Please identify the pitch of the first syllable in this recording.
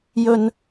high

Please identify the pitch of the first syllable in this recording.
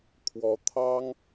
rising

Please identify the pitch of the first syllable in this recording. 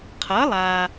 rising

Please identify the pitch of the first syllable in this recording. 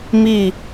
falling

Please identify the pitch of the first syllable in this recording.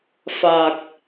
low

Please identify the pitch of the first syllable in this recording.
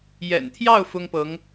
low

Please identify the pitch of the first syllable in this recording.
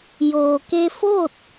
low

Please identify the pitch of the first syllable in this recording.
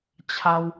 high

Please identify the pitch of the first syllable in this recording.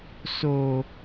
high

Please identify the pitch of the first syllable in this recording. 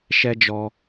high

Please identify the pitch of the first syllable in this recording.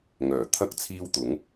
low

